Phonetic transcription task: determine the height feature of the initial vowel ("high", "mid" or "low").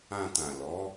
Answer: low